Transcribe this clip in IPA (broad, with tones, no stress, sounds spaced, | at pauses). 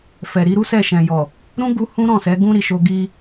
f ɛ˨ ɾ i˨˦ ɾ u˦ s ɛ˦˨ ʃ ɛ̃˨ j ɔ˨ | ɾ ũ˦ ɡ u˧ h ũ˦ ɾ ɔ̃˦˨ s ɛ˨˦ ɡ ũ˦ ɾ i˧ ʃ o˧ ɡ i˧